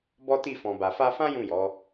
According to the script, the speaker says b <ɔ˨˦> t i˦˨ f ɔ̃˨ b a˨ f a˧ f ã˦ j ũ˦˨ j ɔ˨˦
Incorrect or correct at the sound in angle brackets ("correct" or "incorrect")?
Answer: incorrect